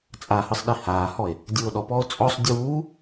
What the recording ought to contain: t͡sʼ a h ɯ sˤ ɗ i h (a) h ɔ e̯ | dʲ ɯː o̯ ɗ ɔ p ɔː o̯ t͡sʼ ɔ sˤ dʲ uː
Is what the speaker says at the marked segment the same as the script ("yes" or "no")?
no